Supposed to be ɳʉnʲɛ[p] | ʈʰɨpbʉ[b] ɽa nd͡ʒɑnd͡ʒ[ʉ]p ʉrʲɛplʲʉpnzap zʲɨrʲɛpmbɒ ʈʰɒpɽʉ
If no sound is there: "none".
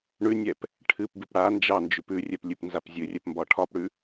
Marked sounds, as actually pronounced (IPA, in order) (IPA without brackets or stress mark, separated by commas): p, p, ʉ